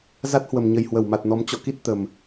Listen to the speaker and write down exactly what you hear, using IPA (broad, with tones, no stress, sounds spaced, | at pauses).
z a˦˥ t̚ h w ə˨˩ m ɲ ə˨˩ j h w ə˧˩ w m a˨˩ t̚ n ɔ˨˦ m t͡ɕ ɔ̰˧˨ k i˦˥ t̚ t̪ ə˨˩ m